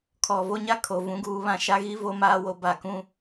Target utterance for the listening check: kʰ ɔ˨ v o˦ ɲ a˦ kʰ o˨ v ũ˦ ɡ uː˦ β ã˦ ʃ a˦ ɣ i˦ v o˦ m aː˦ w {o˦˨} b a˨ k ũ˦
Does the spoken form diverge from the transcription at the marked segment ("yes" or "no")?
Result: yes